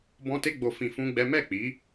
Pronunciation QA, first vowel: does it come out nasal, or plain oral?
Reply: nasal